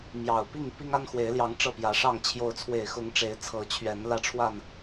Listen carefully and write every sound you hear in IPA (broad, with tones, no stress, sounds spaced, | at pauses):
m j ɑ˨˩ ʊ̯ p i˥˨ ŋ p i˦ ŋ a˦ n x w e˨˦ ɪ̯ l j ɑ˨˦ ŋ ʈ͡ʂ ɤ˥˨ p j ä˨˦ ʂ ɑ˥˨ ŋ t͡ɕʰ j o˨˦ ʊ̯ t͡sʰ w e˨˩ ɪ̯ x ʊ˨˦ ŋ ʈ͡ʂ e˨˦ ɪ̯ t͡sʰ ɤ˨˦ t͡ɕʰ ɥ ɛ˨˦ n l ä˥˨ ʈ͡ʂʰ w a˥˨ n